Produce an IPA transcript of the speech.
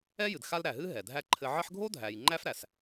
ɛ˥ j ɨ˩ d x a˦ l ɾ æ˩ ɦ ɨ˥ ɦ ɛ˩ dʱ æ˦ ǃʰ ɘ˦ ʕ ɘ˦ ħ ɡʱ o˥ dʱ æ˨ j ŋ͡ǃ æ˦ f ɾ æ˩ s

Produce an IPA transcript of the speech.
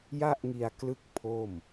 j a˥˩ ʔ ŋ i˧ a̯ k l ɯ˦˥ k̚ pʰ o˥˩ m

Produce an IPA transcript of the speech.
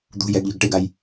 d̪ ṳ j ɛ ɡ ʎ ɔ̤ ɡ ʈ e ɡ a j

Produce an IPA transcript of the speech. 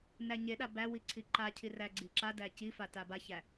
n æ ɲ e ɗ a b æ w i ǀʰ i ǃ a cʰ i r æ ɡ͡ǀ i ǁ a d æ c i f a t a b a ç æ

